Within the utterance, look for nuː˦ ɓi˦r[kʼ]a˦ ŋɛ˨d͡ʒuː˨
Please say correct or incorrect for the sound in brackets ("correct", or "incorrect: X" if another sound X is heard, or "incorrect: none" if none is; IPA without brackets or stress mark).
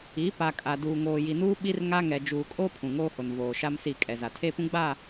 incorrect: ŋ